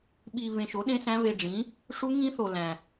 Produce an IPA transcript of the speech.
ɓ i˧ β ẽ˧ ʃ o˨˥ ɗ ẽ˦˥ s æ̃˦˥ β e˧ ɖ͡ʐ ĩ˨˥ | ʂ u˦˥ ŋ ĩ˦˥ θ o˧ l æ̃˧

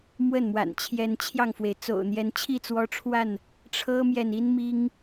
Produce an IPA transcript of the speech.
m w ə˥˨ n m w a̰˨˩ n t͡ɕʰ j ɛ˨˦ n t͡ɕʰ j ɑ˧ ŋ f w e˩ ɪ̯ t͡s o̰˨˩ ʊ̯ n̪ j ɛ˨˦ n t͡ɕʰ i˥˨ t͡s w ɔ˦ ʈ͡ʂʰ w a˥˨ n | ʈ͡ʂʰ ɤ˦ m j ɛ˨ n i˦ n m i˦ ŋ

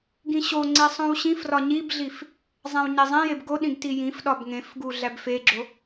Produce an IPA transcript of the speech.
ɡ ĩ ɕ o ŋ͡ǀ e sˤ õ w ɕ ĩ f r ɒ ɲ i b ɮ i f | zˤ æ̃ w ɲ e zˤ ẽ j e b ɡ o ɗ ĩ ɡ t i j ĩ f ɗ ɒ b ŋ ẽ f ɡ u ɮ æ b f e ɡ͡ǁ o

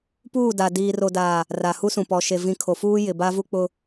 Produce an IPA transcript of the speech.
p uː˦˨ d a˨ d iː˨ r o˨ d aː˨ | r a˨ h u˦ s ũ˨ p ɔ˨ ʃ e˨ v ĩ˨ kʰ o˨ f uː˦ j ɪ˨ b a˦ v u˦ k͡p ʊ˦

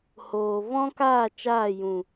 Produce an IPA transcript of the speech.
h oː˨ v ɔ̃˦ k aː˦˨ t͡ʃ aː˦˨ j ũ˨

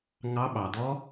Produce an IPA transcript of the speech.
ŋ ɑ˧˥ ɓ ɑ˩ d̪ ɔ˧˥

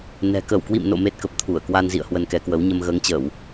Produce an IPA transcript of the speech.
n ɛ̤˨˩ k ə˧˩ w k w ḭ˧˨ m n o̰˧˨ m e˦˥ t̚ k ə˨˩ p̚ t̪ʰ u˧˩ ə̯ k w a˧ n z ḭ˧˨ ə̯ h w ə˧ n k ɛ˨˦ k w ə˨˦ w ɲ ə˧ m ɣ əː˨˦ ŋ t͡ɕ əː˧˩˨ w

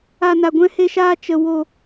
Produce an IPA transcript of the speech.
a˧ n a˧ ɡʷ ɛ̃˦ h e˦ ʃ aː˦ t͡ʃ ə˦ w o˦

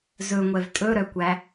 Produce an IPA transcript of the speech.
z ɵ ŋʷ ɛ v tʼ ɵ ɾ œ kʷ æ

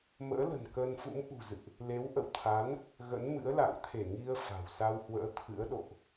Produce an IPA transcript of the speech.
m ə̰ː˧˥ l ə̤˨˩ n k əː˧ n f ṵ˧˥ m ʔ ṳ˨˩ z ɨ̰˧˨ ʔ | l e˨˦ w ʔ ə̰˧˨ w t̪ʰ a˨˦ n | ɣ ə̰˧˥ n m ɨ̰˧˥ ə̯ l a̰˧˨ ŋ t̪ʰ e˧˩ ŋ i˧ ə̯ f a̤˨˩ w s a˧ w h w ə̰ː˧˥ t̪ʰ ɨ̰˧˥ ə̯ ɗ o̰˧˨ ʔ

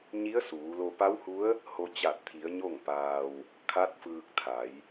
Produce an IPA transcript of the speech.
ɲ i˧˥ ə̯ s uː˩˧ l o˧ p a˧˥ w h u˧˥ ə̯ | h o˧ t͡ɕ a˧˩ t̚ t̪ʰ i˩˧ ə̯ ɲ o˥˨ ŋ p aː˧ w | kʰ a˧˥ t̚ f ɯː˧ k̚ t̪ʰ a˩˧ j

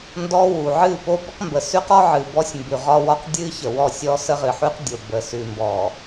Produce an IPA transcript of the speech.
n d ɔ˦ w u˨ ʕ ɨ˦˨ p o˦ b ə˦ q m b ə˨ s ʉ˦ q ɔ˦ ʕ ɨ˨ b ɔ˦ sʲ m b ʉ˨ ʁ ɒ˦ w ɒ˦ q dʲ ɨ˦ ç ə˨ w ɔ˦˨ sʲ ɔ˦ s ə˦ ʁ ɨ˨ ħ ʉ˦ q dʲ o˨ b ə˨ s ʉ˨ m b ɔ˨

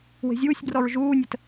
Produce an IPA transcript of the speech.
w e̤ zʲ uː sʲ b r ɔ ɹ ʒ uː nʲ ə t

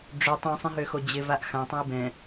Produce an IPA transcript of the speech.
ɖ͡ʐ ʏ tˤ ũ sˤ ẽ ɦ ø x o d͡ʑ ɪ v a ʔ x ã tˤ ɛ̃ i̯ b ɛ̃

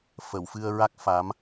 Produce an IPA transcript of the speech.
f ə˨˩˨ w f ɨ˧ ə̯ ɹ a˦˥ k̚ f a˧˥ m

